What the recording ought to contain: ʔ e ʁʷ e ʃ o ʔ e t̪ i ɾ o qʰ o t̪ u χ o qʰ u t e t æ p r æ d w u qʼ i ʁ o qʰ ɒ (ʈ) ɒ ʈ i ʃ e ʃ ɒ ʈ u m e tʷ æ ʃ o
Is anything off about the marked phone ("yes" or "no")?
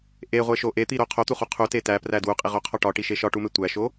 no